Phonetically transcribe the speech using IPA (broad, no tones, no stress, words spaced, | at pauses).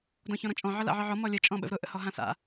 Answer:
dɔ̃çɔ̃ɾɔ̃t͡ʃʼɔ̃ ʕəla̰ʕɯʕɔ mɔlʲə t͡ʃʼɔ̃ɓə̰vɾʊ ʔə̰hɔɦãsa̰